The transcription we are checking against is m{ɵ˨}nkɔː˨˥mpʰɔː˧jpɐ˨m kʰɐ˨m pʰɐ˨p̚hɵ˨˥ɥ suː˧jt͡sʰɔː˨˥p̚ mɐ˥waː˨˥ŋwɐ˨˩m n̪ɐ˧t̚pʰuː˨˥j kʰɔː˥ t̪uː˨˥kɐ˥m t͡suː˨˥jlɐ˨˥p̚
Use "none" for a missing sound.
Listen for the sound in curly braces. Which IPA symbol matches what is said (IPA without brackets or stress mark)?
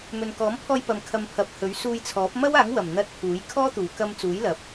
ɵ˨